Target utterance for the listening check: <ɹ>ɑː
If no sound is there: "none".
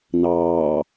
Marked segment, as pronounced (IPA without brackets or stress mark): n